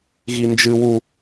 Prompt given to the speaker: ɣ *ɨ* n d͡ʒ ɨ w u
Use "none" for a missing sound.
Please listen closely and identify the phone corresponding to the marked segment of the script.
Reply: i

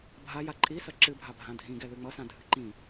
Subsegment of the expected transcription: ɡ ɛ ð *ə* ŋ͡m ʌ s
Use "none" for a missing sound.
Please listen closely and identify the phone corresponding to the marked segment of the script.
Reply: ɨ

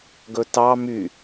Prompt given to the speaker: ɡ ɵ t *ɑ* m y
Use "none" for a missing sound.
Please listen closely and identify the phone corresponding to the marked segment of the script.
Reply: ɑ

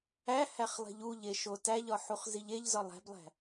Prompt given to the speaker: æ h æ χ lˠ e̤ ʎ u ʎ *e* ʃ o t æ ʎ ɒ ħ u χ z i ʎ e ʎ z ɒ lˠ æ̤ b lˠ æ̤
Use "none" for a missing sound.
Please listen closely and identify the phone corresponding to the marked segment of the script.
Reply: e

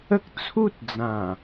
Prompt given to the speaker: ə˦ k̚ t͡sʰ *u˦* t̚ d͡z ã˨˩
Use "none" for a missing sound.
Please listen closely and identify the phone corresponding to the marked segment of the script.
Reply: u˦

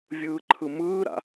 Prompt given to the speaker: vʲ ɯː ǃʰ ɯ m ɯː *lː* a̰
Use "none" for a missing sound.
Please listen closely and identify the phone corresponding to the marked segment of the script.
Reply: ɾ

